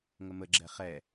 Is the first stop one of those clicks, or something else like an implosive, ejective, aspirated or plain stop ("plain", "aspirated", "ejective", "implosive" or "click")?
click